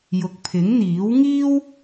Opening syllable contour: low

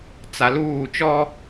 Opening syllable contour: low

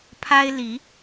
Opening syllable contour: high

